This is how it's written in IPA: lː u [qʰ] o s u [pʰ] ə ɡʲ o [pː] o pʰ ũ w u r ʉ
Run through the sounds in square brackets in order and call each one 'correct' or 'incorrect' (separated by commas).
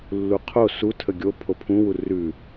correct, incorrect, incorrect